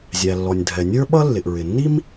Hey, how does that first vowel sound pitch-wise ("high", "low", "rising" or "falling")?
low